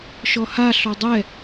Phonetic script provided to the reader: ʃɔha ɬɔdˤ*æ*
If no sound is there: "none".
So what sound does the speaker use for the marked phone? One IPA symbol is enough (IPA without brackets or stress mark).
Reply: ɛ